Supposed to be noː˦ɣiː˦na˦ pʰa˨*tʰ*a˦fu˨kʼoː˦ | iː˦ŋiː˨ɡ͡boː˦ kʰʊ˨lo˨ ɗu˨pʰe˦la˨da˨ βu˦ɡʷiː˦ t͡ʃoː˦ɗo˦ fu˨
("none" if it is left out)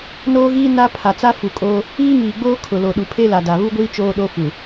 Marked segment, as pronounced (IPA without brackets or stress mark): t͡s